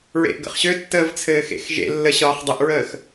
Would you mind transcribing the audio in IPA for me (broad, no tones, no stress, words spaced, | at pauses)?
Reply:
ɹḛʔɡə̰χɕøtːəːv t͡sʰɘːxḛxʒḛlːə ɕɒːχdˤəʔɹəːx